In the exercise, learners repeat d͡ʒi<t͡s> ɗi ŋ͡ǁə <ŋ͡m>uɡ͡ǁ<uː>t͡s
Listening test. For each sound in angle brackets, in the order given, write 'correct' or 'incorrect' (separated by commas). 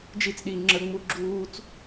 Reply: correct, correct, correct